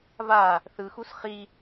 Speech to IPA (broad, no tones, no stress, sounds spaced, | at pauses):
v a | θ ɯ x u s χ i